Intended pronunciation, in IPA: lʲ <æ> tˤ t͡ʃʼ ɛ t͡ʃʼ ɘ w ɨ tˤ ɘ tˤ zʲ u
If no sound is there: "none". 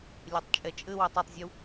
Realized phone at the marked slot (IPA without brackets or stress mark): ɛ